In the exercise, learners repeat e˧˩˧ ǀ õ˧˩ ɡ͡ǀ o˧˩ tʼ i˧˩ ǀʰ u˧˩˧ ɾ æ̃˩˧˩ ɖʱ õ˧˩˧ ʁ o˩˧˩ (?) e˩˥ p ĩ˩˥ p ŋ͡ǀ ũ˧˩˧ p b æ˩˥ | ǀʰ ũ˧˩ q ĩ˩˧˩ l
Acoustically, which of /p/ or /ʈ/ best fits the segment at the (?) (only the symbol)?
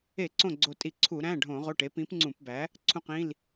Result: ʈ